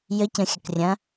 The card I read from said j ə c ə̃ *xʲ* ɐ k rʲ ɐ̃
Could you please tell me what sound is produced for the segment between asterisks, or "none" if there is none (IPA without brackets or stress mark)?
xʲ